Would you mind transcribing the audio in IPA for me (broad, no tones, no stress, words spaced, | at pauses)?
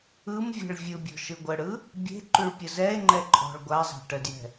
ɯmvʲe̤ɭ vʲɯbʲɔ̤ ʃɯɡʷəɽɯ | bʲe̤ǃyɭ pʲəzɛe̯ŋ͡ǃɛ ǃʼɔ̤ɭ ɡʷazˤa̤ ʈədjɛ̤